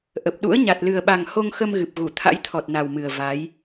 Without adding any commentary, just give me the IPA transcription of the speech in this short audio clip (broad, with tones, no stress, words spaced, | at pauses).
ʔə˨˩p̚ɗṵ˧˥ə̯ ɲa˨˩t̚lɨ˨˩ə̯ɓa˨˩ŋ ho˧ŋxə˧mɣɨ˨˩p̚ɣu˧˩ t̪ʰa̰˧˥jt̪ʰɔ˨˩t̚ na˨˩wmɨ˨˩ə̯ va˨˦j